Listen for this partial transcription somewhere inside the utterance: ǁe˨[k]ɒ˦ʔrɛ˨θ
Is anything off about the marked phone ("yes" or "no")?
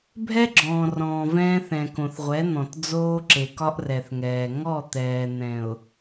no